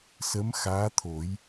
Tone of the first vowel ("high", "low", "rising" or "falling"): rising